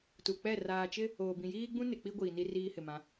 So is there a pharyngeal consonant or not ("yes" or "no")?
no